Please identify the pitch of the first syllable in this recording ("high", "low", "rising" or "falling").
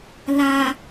low